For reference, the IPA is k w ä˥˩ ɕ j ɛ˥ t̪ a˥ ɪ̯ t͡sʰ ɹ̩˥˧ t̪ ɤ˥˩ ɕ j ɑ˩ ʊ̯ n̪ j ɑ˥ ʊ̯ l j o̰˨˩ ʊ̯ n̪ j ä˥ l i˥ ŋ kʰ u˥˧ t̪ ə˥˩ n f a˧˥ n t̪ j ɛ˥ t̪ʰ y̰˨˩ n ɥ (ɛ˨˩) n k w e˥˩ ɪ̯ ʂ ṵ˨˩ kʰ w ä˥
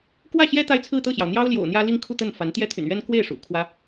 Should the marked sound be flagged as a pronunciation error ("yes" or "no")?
yes